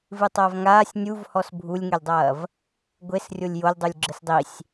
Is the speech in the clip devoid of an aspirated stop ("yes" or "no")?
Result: yes